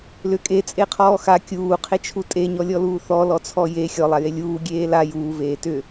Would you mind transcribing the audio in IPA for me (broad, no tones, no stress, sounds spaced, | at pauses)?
l ʏ kʼ e t͡sʼ e qʰ ɔː x a kʲ uː qʰ e t͡ʃʰ u tʼ e ɲ ɔ lʲ ɔ l uː θ ɔ l ɔ t͡sʰ ɔ j e xʲ ɔ lˠ a j e lʲ uː ɡʲ eː l a j uː v eː t ʏ